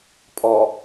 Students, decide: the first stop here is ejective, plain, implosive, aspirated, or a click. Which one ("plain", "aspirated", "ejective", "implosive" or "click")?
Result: ejective